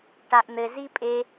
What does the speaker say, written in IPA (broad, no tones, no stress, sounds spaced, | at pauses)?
ʈ a ʔ n̪ ɘ z i pʼ e